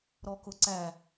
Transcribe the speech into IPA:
ɾɔkʊǀæ

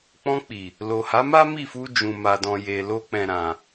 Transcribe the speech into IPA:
k͡pɔ̃˧k͡pi˨ | lo˨ha˨˦ma˦ mi˦˨fu˧ d͡ʒũ˨ma˨dɔ̃˨je˨ lo˧k͡pɛ̃˨ɾã˨

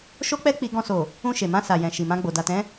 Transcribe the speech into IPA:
ʃo˦k͡pɛ˦k͡pi˧ ɡɔ̃˧so˨ | ũ˧ ʃe˨mã˧sa˨jɛ̃˨ ʃi˨mã˧ɡ͡bo˨ da˨tɛ̃˨˦

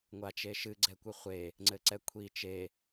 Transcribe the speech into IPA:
ŋʷat͡ʃeʃɨ ɡ͡ǀɛkʷɨχʷe | ŋ͡ǀɘǀɛkʷʰi t͡ʃe

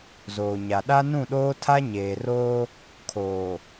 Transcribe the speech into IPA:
zoː˨ɲa˨ ɗa˦ nũ˦˨ɗoː˦ tʰa˦ɲeː˨roː˦ | kʰoː˨

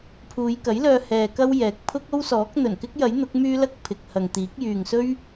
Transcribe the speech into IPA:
pʰuː˨˧jkɐ˨˥jlœː˧ hɛː˧kɐ˥w jɛː˨k̚pʰʊ˥k̚o˥wsɔː˨˥k̚ n̪ɵ˨˩nkɪ˥k̚jɐ˨˥jn̪ʊ˨˥k̚ myː˥lɐ˥k̚pʰɪ˨k̚hɐ˨ŋ t̪iː˨˥k̚ jyː˨ŋsɵ˥ɥ

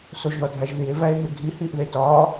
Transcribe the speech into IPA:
soʒðɒdʱæʒðie̯ væe̯ɦeɡʱi hiʔðetɒ

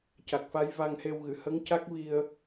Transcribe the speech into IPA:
ca˨˩k̚fa˧˥j va˧ŋhe˧wɣɨ˨˩˨ hə˧˥ŋca˦˥k̚ vi˧ə̯

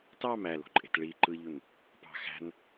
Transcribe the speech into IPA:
tɑm ælo̤ǃʼe̤t ɭi ǃɯʎun | pɑ̤ xæ̤n

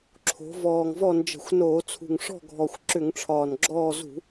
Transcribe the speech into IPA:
ǁʰo̤˩˧vɔː˨˩ŋvɔ˦˨nd͡ʒə̤˧˩˧xʷ noː˧˩˧ t͡sʰṳ˨˩ŋʂɔ̤˦˨ɡʱɔ˨˩xʷ ǁʏ˧˩˧ŋʈ͡ʂʰɒː˨˩nɡ͡ǁɔː˦˨ zṳ˧˩˧

